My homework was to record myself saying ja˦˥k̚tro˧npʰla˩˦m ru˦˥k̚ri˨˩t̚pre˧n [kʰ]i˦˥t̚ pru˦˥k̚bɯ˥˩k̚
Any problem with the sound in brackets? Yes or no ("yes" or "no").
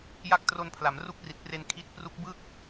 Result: no